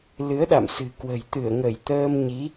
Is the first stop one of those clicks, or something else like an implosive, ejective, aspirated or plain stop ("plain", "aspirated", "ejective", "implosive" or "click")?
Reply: implosive